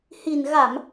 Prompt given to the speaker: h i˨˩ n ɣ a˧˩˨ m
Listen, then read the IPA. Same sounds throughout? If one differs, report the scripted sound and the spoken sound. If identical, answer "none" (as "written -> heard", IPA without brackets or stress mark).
none